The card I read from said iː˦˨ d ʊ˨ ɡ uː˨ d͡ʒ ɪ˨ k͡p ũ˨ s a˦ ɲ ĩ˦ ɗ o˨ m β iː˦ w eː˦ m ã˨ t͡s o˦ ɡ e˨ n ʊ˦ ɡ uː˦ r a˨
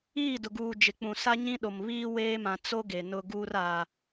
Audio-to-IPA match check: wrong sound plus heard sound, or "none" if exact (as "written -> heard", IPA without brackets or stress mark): none